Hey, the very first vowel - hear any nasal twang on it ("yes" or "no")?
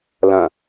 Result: yes